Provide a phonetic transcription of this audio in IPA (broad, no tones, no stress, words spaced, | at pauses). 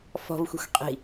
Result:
fɔ̤vxʷi̤xʷ qʼi̤